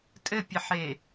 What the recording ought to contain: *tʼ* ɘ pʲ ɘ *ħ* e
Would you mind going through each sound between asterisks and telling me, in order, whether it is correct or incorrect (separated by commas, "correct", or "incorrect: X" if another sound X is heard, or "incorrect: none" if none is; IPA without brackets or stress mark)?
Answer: correct, correct